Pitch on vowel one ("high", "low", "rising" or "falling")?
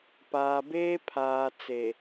low